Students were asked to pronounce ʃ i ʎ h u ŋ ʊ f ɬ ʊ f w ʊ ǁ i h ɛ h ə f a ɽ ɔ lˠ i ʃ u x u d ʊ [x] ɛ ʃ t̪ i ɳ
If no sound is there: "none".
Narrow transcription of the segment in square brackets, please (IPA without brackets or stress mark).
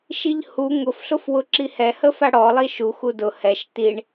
h